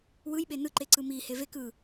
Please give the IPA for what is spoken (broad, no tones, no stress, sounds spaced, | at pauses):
w ɯ j ɓ e n ɯ ǃ e ǀ ɯ m i h e v e k ɯ